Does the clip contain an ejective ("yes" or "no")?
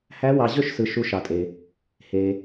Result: yes